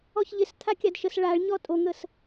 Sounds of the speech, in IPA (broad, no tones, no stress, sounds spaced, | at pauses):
ɔ ç ʎ ɪ s t̪ʰ a kʲ a d ʃ ə s ɭ a ɭ ɲ ɔ tʼ o ŋ ə s